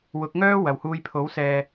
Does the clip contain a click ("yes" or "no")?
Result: no